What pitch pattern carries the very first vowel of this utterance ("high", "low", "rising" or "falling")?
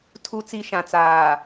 low